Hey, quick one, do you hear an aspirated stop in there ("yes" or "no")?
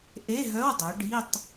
no